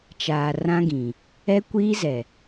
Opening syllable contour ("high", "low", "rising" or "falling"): low